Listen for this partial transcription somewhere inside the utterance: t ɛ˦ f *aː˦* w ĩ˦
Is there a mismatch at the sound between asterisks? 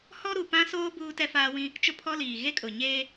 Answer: no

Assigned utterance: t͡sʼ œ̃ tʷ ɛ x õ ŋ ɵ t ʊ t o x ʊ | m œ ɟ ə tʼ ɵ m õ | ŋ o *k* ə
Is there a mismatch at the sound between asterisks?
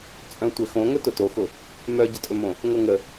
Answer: yes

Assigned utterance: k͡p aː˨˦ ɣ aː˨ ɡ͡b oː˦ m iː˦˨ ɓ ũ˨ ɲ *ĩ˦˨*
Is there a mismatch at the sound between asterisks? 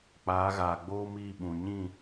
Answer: no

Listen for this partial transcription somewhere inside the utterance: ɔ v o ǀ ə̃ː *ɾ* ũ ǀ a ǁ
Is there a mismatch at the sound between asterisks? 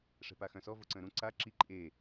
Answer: no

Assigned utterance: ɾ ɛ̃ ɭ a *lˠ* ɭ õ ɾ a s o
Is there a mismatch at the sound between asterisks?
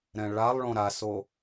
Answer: no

